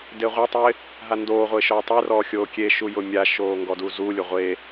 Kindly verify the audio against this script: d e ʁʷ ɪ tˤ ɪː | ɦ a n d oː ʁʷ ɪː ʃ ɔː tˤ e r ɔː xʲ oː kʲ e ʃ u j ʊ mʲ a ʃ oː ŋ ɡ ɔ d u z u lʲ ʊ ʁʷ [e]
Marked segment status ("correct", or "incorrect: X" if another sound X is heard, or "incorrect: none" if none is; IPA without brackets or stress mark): correct